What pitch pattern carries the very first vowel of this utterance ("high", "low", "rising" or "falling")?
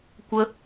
high